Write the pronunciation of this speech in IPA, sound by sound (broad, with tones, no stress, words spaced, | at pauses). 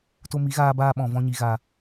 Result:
to˧mi˨˦ɣaː˧baː˧ ɓɔ̃˨vɔ̃˧ɲi˨ ɣa˨